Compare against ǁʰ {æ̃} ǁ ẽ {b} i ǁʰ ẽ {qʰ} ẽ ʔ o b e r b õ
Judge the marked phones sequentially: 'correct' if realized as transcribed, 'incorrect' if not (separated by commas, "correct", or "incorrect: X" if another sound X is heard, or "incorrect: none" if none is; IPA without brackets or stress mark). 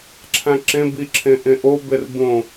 correct, correct, incorrect: ʔ